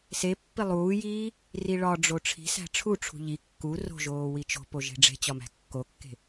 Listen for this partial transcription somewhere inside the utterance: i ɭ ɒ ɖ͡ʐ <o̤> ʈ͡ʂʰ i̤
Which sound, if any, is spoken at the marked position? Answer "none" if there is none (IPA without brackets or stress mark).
o